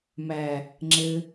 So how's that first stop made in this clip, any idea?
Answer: click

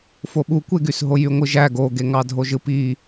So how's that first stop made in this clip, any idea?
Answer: implosive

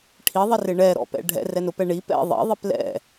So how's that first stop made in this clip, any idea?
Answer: aspirated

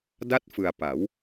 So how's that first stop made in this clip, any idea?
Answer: plain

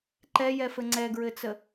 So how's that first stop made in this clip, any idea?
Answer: click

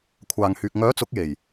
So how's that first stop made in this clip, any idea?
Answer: aspirated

